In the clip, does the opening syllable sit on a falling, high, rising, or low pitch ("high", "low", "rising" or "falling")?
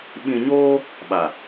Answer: low